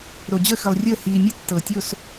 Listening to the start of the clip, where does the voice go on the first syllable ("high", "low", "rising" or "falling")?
low